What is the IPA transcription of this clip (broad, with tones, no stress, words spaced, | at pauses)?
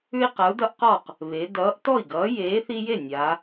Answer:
ʉ˦i̯qa˨˥u̯dʌ˦ʔ qɔ˥˩q | βe˩˧ dʌː˨˥ʔtɔ˥˩i̯ɡʌː˨˥ jeː˨˥θi˦je˥˩ nʲa˩˧